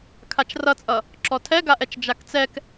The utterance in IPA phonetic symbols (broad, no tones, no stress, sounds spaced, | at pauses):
kʰ a t͡ʃ r ʌ t͡sʼ ʌ | ǁ ɔ tʰ ɛ ɡ a ʔ ɛ t͡ʃ d͡ʒ a k t͡s ɛ k